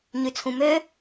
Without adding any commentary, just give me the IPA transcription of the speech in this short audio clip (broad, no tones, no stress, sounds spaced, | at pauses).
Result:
ɲ ʉ t͡sʰ ũ m ø